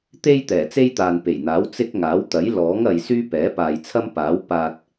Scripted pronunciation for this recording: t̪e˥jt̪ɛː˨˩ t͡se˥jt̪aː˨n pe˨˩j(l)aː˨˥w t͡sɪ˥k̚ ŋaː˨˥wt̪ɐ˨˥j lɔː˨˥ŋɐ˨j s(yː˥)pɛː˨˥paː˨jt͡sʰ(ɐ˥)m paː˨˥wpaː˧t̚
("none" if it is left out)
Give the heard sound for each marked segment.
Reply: n̪, yː˥, ɐ˥

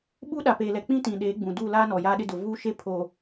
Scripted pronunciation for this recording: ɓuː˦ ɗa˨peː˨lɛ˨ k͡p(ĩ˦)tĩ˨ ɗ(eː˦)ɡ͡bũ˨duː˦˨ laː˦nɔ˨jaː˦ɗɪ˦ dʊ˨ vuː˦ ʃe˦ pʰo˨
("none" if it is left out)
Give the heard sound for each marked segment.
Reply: ĩ˦, eː˨˦

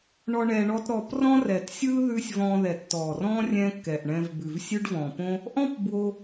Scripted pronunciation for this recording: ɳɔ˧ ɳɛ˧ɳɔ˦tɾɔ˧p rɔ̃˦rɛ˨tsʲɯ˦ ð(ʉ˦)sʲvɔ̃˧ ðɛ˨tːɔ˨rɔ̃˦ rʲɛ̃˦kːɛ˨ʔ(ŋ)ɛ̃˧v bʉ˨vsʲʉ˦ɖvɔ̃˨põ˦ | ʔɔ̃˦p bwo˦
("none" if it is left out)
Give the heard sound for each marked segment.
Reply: ʉ˦, ɳ

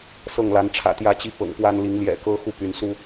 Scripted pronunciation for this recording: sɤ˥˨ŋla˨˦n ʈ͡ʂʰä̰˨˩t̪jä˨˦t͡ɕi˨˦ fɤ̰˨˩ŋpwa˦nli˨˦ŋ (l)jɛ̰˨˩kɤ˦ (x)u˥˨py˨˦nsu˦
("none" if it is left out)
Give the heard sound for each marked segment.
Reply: l, x

